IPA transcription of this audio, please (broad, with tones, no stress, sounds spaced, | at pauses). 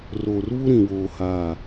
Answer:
r oː˨ r β u˦ ɾ ĩ˨ w oː˨ h aː˦˨